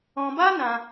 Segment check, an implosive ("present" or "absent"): absent